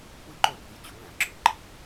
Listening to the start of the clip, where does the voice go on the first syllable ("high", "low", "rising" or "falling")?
high